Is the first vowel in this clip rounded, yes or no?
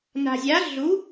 no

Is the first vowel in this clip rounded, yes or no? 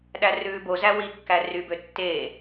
no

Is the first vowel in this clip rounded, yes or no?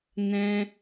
no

